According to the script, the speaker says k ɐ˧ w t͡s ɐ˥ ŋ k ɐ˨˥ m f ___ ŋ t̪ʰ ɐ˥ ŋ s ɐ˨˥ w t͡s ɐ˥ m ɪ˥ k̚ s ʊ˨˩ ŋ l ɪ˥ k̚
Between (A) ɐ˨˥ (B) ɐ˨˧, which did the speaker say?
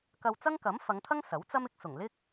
B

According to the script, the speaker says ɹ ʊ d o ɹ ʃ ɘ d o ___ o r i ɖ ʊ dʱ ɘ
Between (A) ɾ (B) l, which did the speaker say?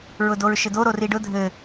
A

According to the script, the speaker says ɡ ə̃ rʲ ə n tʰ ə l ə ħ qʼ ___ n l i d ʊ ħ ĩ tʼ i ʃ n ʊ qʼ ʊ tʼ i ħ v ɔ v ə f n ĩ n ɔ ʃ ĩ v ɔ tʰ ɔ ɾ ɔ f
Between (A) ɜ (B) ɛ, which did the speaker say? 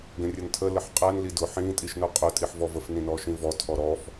A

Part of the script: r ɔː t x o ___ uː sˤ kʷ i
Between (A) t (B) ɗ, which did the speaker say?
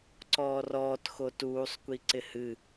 A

